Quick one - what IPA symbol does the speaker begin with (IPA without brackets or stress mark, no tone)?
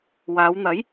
w